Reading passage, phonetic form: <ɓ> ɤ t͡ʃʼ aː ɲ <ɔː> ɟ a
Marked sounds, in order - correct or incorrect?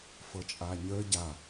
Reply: incorrect: f, incorrect: əː

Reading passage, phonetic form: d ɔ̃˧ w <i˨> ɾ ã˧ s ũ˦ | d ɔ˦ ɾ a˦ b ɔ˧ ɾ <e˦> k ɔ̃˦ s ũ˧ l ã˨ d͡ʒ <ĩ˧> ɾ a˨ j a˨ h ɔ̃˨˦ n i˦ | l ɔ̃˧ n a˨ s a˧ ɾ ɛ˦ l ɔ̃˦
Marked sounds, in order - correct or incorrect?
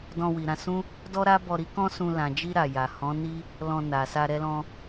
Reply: correct, incorrect: i˦, incorrect: i˧

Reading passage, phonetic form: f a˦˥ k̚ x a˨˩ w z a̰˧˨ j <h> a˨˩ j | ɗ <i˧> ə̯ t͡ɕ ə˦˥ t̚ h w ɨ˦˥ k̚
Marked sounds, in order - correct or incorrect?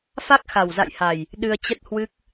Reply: correct, incorrect: ɨ˧

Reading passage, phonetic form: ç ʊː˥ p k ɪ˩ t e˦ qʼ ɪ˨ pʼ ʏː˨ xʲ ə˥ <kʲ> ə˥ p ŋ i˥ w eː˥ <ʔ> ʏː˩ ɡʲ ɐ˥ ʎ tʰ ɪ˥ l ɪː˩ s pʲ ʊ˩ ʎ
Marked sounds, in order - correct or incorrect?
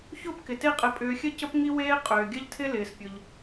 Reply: incorrect: c, incorrect: qʼ

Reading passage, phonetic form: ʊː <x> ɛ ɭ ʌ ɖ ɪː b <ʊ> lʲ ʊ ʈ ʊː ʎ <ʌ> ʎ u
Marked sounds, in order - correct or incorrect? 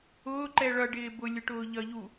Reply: incorrect: ǃ, correct, correct

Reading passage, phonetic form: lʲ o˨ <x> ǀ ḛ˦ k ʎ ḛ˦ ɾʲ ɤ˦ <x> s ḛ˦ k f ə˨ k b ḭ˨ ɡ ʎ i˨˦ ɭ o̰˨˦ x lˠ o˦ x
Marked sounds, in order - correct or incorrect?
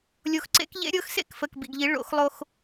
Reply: correct, correct

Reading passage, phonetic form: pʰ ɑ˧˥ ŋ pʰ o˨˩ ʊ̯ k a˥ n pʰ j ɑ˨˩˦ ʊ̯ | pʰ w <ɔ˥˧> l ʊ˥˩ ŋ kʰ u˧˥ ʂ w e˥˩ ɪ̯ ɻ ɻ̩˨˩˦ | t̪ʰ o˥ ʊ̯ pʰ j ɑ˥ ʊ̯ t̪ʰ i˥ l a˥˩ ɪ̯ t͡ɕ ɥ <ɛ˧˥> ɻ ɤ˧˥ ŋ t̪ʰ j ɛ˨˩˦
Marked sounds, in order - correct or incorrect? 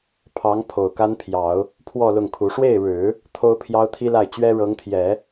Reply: correct, incorrect: ɛ˥

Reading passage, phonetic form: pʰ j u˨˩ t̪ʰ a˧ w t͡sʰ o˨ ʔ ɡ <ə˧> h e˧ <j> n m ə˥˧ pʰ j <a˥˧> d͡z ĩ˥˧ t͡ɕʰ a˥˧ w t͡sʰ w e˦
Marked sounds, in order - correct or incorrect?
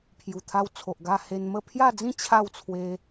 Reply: incorrect: a˧, incorrect: none, correct

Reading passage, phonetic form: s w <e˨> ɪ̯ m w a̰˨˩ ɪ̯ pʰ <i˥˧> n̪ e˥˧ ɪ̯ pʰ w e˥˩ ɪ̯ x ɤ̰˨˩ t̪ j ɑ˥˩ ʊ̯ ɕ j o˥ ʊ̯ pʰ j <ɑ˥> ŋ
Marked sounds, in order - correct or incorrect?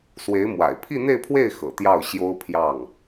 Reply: incorrect: e˧˥, correct, incorrect: ɑ˥˩

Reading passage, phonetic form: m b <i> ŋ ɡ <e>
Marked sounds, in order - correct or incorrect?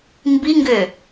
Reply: correct, incorrect: ø

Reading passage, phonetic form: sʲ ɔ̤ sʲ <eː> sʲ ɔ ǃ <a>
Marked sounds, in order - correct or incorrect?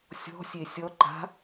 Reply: incorrect: e, incorrect: a̤

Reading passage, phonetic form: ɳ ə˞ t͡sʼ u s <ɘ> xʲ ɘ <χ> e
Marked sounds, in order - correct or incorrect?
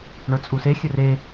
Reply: incorrect: e, incorrect: r

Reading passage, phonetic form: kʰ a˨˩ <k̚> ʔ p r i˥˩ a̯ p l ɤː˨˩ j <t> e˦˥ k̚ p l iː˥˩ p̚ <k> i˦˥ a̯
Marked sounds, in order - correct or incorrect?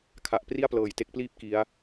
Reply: incorrect: none, correct, correct

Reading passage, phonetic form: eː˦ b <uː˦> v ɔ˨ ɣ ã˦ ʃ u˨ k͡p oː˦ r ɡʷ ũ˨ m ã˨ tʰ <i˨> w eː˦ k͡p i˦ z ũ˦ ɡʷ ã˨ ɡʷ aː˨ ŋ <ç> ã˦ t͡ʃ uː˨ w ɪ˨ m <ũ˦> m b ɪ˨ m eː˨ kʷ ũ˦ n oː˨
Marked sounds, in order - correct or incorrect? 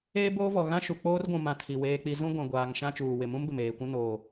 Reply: incorrect: oː˦, correct, incorrect: ʃ, correct

